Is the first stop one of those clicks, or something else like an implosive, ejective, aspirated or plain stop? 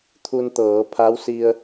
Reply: aspirated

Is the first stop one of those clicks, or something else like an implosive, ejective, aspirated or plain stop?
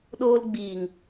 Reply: implosive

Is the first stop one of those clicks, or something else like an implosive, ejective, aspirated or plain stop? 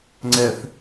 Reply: click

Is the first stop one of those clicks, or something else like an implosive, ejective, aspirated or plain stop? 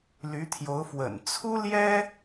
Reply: aspirated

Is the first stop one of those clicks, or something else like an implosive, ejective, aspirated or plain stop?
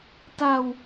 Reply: plain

